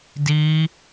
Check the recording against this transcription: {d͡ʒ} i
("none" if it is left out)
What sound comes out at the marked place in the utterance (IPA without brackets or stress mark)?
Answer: d